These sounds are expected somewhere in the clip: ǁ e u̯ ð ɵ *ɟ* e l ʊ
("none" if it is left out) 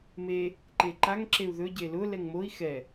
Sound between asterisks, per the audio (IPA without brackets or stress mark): ɟ